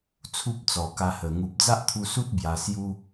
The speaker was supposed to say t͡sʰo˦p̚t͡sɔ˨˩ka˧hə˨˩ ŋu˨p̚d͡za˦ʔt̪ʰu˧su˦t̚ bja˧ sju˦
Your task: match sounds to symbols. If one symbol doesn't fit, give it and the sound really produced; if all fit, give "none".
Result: o˦ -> u˦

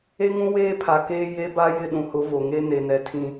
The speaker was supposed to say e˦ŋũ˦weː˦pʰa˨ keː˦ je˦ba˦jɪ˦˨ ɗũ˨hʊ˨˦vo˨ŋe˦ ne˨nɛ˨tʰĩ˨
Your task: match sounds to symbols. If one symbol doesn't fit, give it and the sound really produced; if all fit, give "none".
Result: none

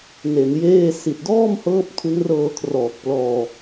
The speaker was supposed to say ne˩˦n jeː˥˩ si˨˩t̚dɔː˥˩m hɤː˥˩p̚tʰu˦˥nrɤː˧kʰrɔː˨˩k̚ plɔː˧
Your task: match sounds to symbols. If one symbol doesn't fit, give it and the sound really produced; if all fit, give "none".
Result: none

